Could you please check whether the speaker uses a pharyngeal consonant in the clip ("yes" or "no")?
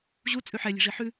yes